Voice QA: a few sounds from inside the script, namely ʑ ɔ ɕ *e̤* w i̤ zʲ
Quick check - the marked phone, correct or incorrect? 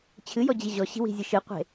incorrect